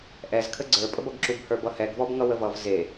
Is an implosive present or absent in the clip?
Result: absent